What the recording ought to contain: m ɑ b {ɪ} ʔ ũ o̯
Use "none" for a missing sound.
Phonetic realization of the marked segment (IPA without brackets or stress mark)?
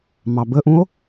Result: ə